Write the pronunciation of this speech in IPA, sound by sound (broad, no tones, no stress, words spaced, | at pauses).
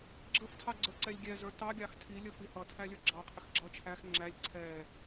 ɡ͡ǁəftʰɑ ɡ͡ǀə˞ǀɛlʲɡʲɛzə˞ tɑɡʲɑx tʰi lʲəfihʌtʰæ lʲə˞ɡ͡ǁɑqʰɪx ɡ͡ǁʌ t͡ʃʰæx ŋ͡ǁælʲ ǀʰɛ